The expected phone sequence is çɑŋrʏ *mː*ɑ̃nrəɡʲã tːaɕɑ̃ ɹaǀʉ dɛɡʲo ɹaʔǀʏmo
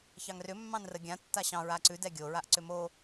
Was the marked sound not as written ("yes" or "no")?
no